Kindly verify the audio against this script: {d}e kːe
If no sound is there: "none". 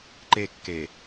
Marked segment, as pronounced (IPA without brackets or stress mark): ǃ